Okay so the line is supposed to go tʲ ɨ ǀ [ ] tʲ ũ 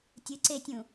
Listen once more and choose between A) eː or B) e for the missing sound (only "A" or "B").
B